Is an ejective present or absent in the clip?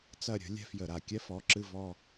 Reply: absent